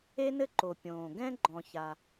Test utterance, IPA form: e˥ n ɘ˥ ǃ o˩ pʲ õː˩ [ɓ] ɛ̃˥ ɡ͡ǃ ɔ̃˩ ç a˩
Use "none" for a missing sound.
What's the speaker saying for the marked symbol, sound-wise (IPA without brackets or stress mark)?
ɡ